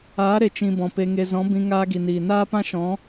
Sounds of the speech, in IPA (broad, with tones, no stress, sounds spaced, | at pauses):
aː˨˦ ɾ e˨ t͡ʃ ĩ˧ b ɔ̃˨ p e˧ ŋ e˧ z ɔ̃˨˦ b ĩ˧ ŋ aː˦ ɡ i˨ n iː˨ n aː˦ p ã˦ ʃ ɔ̃˨˦